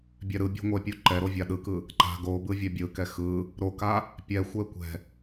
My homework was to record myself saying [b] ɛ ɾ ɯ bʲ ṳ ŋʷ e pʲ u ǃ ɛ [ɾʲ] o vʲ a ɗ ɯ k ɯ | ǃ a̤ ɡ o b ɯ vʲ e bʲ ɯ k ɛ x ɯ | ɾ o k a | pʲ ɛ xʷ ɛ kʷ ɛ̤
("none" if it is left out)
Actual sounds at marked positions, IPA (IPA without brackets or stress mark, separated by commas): bʲ, ɾ